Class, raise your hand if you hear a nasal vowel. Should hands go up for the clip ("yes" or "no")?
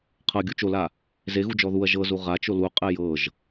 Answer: no